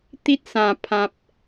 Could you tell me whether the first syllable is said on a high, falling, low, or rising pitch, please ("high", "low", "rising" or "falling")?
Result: high